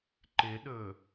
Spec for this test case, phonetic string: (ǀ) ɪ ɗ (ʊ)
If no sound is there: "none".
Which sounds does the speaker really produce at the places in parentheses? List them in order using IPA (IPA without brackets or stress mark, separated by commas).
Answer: ǃ, ɵ